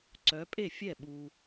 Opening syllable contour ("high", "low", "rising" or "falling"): rising